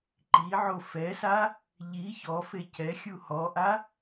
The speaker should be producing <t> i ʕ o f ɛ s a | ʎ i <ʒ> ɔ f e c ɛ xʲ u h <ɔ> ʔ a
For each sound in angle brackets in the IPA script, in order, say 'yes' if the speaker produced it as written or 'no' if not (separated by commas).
no, no, yes